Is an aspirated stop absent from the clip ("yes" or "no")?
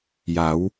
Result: yes